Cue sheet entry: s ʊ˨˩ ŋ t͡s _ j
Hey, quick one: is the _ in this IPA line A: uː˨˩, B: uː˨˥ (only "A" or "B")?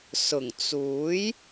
B